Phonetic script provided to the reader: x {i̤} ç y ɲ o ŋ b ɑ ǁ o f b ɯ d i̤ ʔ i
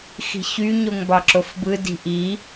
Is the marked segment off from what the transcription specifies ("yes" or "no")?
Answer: no